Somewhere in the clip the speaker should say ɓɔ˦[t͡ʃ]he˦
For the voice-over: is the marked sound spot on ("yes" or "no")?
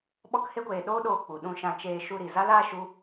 no